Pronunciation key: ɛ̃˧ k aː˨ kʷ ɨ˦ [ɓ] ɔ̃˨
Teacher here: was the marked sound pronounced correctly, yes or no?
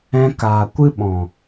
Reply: yes